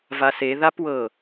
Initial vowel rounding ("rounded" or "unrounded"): unrounded